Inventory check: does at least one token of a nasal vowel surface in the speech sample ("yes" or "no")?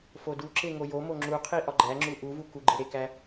no